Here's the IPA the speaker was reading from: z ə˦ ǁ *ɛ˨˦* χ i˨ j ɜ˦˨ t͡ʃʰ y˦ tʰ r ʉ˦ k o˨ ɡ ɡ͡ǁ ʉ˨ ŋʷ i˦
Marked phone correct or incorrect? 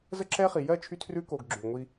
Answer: incorrect